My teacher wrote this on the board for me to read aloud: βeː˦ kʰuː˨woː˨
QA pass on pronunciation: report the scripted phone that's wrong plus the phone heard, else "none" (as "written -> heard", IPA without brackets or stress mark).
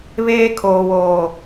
uː˨ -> oː˨